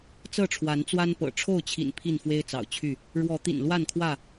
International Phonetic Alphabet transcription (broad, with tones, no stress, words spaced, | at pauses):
t͡sɤ˥˨ʈ͡ʂʰwa˨˦nt͡swa˦npɤ̰˨˩ ʈ͡ʂʰo˥˨ʊ̯t͡ɕʰḭ˨˩n pʰi˥˨nfwe˦ɪ̯t͡sɑ̰˨˩ʊ̯ t͡ɕʰy˥˨ | ɻwɔ˨˦t̪ḭ˨˩nlwa˥˨nkʰwä˥˨